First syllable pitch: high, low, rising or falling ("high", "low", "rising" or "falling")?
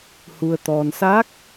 low